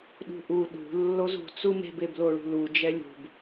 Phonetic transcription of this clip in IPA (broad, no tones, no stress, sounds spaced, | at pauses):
ɗ ṳ ʔ u ɗ ṳ lː o z ṳ t͡s u m e̤ b e b l o ɭ ṳ l u d͡ʒ ɛ lʲ ṳ b